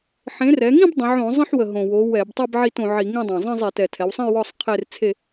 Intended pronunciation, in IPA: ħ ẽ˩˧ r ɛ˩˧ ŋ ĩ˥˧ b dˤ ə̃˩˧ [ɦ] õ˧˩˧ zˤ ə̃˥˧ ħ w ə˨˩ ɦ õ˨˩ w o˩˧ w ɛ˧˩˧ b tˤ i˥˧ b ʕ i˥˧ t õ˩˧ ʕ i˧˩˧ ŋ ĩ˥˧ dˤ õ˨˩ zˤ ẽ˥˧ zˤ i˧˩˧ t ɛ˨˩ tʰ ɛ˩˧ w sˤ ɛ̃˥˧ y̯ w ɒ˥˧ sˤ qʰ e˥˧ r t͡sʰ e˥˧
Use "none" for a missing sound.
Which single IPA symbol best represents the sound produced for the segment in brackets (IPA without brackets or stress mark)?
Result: ʕ